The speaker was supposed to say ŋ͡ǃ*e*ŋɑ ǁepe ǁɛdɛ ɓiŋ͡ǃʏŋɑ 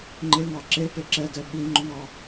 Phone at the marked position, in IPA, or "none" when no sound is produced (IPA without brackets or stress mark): e